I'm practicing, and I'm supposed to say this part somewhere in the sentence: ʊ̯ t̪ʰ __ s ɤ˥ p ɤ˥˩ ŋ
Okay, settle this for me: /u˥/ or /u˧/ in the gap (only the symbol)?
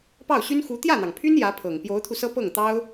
u˧